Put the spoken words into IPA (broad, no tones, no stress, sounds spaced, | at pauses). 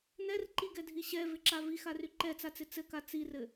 n ɛ r ǃ i ɡ ɛ dʱ i ɕ ɛ v ɪ ǁ a v i x a r y ǃ ɛ t͡s a t͡s ɪ t͡s ɘ k a t͡s i r ɘ